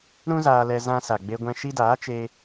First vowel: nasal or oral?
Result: nasal